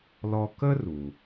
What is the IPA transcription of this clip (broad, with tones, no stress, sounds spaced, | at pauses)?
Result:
l ɔ˧ k ə˥ r u˩